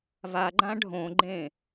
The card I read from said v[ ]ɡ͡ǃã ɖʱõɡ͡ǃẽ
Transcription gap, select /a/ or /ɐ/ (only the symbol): a